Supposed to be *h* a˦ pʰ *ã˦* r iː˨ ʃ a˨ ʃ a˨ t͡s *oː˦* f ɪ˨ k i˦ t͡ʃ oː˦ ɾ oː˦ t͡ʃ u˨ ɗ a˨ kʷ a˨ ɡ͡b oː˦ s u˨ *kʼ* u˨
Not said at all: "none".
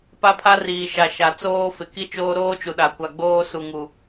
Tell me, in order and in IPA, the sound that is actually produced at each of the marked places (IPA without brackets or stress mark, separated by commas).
p, a˦, oː˦, ŋ